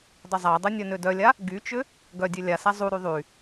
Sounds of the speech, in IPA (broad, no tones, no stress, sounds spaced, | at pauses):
dˤ ʏ zˤ a dˤ œ nʲ œ n ø d œ lʲ a | ɡ y t͡ʃ ʏ | ɡ œ dʲ ø lʲ a s a zˤ u ɾ y ðˤ y